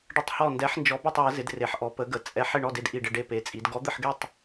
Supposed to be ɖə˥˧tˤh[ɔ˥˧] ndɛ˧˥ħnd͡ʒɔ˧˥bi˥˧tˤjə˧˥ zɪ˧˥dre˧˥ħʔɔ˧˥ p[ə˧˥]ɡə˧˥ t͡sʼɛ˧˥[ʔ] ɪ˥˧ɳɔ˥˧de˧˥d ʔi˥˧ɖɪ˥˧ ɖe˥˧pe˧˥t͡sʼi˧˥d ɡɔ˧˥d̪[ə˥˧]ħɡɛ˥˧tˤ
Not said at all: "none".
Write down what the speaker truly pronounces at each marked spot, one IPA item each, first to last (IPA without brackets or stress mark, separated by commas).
ɔ˥˧, ə˧˥, ħ, ə˥˧